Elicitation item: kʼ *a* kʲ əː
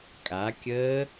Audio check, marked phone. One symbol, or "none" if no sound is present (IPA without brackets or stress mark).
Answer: a